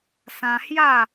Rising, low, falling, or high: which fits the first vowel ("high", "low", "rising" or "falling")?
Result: high